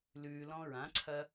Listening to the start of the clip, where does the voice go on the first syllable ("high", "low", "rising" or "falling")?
low